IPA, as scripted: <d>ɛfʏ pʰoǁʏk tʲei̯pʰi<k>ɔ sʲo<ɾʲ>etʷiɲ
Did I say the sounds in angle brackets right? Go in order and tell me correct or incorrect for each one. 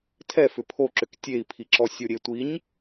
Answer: incorrect: tʰ, incorrect: ǁ, correct

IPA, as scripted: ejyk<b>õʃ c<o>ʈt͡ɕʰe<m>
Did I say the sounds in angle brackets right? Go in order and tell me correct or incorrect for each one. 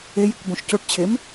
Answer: correct, correct, correct

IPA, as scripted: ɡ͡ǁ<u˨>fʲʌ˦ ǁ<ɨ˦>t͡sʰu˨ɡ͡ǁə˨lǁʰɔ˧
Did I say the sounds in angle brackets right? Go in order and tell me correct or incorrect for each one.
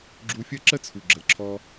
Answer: incorrect: u˧, incorrect: ə˦

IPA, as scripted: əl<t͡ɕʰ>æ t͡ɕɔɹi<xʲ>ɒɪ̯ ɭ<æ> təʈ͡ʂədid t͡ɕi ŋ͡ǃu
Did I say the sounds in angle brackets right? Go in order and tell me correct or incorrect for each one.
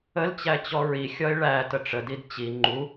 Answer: incorrect: t͡ɕ, correct, correct

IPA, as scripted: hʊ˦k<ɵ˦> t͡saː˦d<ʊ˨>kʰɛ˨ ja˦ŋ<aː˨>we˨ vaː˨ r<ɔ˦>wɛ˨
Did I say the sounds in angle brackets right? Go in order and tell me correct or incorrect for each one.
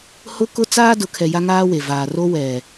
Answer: incorrect: ʊ˦, correct, incorrect: aː˦, incorrect: o˦

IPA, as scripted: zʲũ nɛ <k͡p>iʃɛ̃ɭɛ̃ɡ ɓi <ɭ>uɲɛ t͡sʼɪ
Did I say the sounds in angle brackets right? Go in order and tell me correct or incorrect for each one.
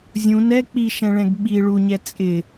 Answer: correct, correct

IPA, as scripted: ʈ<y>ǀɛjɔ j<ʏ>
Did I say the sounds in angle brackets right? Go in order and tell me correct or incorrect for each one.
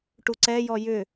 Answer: incorrect: u, correct

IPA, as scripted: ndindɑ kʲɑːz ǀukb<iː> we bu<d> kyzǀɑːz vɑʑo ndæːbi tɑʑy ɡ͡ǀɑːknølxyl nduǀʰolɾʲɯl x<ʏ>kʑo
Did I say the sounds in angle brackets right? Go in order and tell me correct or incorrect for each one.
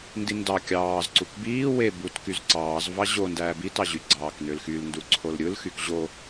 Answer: correct, incorrect: t, incorrect: y

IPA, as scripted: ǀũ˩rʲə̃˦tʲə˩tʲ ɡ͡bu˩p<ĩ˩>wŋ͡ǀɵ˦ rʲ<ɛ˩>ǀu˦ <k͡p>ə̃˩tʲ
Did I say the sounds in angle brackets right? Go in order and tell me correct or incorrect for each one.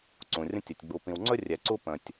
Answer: correct, correct, incorrect: p

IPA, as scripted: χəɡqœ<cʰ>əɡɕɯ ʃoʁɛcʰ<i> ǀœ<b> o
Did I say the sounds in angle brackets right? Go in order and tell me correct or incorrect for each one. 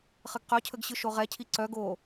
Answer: correct, correct, incorrect: ɡ

